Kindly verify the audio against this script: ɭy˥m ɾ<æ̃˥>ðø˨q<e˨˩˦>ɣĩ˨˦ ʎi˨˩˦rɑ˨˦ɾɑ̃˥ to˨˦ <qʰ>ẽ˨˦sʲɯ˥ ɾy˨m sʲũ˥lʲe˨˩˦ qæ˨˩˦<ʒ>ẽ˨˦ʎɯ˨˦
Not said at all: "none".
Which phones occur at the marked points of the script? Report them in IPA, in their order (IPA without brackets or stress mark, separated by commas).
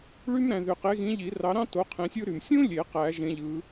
æ̃˨, e˨˦, qʰ, ʒ